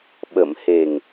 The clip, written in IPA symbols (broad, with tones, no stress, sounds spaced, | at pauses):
ɓ ə˨˩˨ m h e˨˩ ŋ